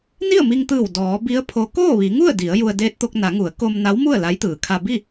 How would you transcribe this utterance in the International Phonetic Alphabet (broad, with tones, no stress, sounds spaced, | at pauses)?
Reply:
n i˥˨ ə̯ m i˧ ŋ t̪ ɯː˧˩ w d ɔː˩˧ b i˧˥ ə̯ pʰ o˧˥ k oː˥˨ ʋ i˩˧ ŋ u˥˨ ə̯ d i˩˧ ə̯ j u˧ ə̯ d eː˧ t̚ t̪ o˧ k̚ n a˩˧ ŋ u˩˧ ə̯ k o˧ m n a˧˥ w m u˥˨ ə̯ l a˧˥ j t̪ ɯː˩ kʰ a˧ b i˥˨